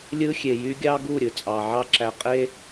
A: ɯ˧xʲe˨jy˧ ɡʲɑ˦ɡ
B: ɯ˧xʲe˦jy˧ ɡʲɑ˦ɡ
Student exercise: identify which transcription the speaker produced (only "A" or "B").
A